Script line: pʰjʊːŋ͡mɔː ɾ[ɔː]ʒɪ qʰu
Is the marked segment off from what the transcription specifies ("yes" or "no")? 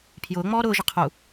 yes